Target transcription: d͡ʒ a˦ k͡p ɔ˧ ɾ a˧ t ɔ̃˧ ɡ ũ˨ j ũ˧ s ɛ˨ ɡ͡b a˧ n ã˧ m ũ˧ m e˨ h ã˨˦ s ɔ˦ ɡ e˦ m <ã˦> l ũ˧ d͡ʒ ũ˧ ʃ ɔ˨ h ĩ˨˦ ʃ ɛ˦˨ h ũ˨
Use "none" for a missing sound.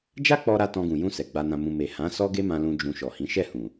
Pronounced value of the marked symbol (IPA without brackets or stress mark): ã˧